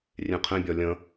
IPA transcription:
rʲẽqʰẽbʲɒ lʲə̃

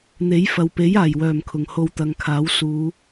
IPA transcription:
n̪e˨˥j fɐ˨w pe˨˥jaː˨˩jwœː˨˩m kʰʊ˨˩ŋho˧wt̪ɐ˨ŋkʰaː˨˥w suː˨˧

